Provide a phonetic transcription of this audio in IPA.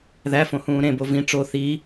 ð æ f õ h ũː ɾ ẽ b o v ĩ ʈ͡ʂ o θ i

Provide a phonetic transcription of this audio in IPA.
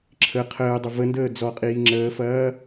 ǁʰ ə qʰ əː dˤ ə v ə n d əː d͡z ɔ qʼ iː ŋ͡ǁ əː f ɐː

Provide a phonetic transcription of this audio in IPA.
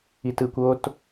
i t ɯ kʷ o t

